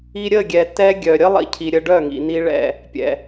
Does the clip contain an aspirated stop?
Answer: yes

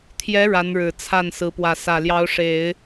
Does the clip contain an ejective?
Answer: no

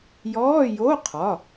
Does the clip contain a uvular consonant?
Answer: yes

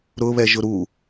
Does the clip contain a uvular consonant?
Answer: no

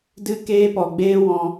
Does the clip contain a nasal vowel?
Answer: yes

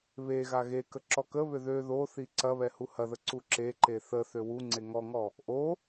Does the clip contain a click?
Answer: yes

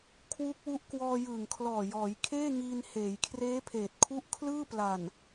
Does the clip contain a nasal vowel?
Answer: no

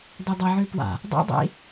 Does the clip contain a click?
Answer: no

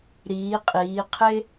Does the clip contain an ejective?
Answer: yes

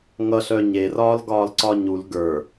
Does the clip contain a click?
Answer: yes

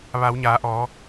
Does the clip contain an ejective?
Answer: no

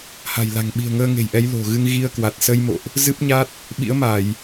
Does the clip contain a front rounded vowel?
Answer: no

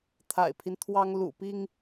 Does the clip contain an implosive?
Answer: no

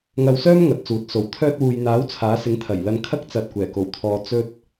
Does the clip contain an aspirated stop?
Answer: yes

